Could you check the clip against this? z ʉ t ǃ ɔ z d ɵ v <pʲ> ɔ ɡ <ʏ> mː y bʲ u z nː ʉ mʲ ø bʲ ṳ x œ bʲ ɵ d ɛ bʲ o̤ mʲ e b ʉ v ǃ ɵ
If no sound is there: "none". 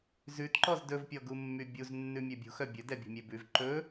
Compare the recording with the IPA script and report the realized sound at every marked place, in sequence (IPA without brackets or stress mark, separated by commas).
pʲ, u